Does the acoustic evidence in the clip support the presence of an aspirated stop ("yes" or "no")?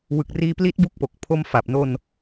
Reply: yes